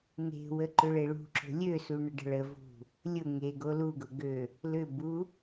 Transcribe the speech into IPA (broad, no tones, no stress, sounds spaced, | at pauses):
n e̤ w ə ǃ ʏ ɭ e ɭ ṳ ǁ o̤ lʲ ø s u ɳ ə ɖ ə̤ ɭ ə v ṳ | lʲ ʊ ŋ e ɡ o l u ɡ ʊ ɡ ø | l ʏ b u